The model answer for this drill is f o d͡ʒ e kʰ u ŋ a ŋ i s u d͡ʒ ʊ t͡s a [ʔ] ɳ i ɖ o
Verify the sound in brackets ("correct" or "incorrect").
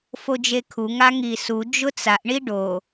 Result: correct